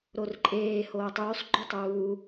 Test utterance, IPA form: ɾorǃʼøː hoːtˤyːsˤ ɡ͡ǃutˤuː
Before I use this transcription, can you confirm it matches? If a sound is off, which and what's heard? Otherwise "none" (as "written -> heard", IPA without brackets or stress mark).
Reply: øː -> eː